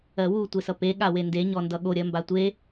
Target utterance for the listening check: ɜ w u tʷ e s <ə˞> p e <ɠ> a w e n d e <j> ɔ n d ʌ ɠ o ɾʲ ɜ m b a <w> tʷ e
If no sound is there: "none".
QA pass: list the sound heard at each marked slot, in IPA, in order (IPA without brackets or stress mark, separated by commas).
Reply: ʌ, ɠ, ɲ, none